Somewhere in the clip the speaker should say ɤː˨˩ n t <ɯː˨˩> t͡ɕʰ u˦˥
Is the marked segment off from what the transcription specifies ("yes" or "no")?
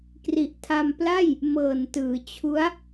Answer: yes